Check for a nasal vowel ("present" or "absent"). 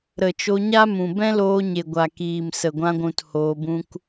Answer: present